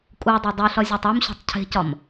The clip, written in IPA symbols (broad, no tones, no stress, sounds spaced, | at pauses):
kʼ u dˤ e dˤ u ɬ ɒ zʲ ɒ tˤ o m ɕ ṳ tˤ cʰ e̤ c ɒ m